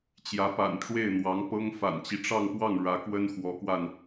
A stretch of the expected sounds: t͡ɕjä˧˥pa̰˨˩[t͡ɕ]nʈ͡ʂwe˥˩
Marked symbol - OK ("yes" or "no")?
no